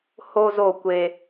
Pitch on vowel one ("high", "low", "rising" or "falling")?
high